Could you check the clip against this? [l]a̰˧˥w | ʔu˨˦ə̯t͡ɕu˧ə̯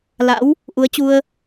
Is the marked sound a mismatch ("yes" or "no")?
no